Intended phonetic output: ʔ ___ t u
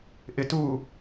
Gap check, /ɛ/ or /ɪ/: ɪ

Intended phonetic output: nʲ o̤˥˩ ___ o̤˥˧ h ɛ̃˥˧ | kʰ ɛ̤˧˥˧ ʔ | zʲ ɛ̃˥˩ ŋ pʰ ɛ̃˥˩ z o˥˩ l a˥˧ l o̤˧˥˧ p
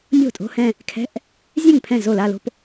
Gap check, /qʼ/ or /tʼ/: tʼ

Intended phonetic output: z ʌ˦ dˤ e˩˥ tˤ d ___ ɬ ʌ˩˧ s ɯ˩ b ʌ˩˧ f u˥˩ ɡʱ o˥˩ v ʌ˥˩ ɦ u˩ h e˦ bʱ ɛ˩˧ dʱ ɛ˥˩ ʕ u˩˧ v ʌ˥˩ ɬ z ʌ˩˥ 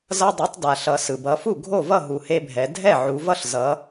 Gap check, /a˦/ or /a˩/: a˩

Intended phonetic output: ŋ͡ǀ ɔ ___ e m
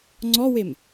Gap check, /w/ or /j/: w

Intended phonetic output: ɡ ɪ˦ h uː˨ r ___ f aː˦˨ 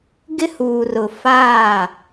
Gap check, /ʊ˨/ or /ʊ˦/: ʊ˨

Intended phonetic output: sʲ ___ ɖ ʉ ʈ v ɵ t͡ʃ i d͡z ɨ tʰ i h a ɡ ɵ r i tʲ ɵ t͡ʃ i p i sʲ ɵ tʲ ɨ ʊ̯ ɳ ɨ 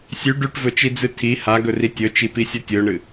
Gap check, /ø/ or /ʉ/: ʉ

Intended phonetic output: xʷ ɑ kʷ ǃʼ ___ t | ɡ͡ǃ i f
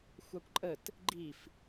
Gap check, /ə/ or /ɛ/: ə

